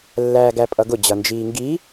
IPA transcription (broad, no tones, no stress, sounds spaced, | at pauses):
lː æː ɡ æ pʼ ʌ ɡ ʊ d͡ʑ ʌ n d͡ʒ iː ŋ ɡ i